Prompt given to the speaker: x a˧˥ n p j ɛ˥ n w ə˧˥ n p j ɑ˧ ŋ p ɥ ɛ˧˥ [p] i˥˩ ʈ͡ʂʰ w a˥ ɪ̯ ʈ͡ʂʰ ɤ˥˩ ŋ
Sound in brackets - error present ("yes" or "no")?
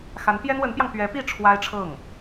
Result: no